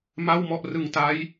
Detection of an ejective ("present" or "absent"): absent